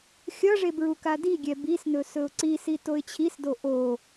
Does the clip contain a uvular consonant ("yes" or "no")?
no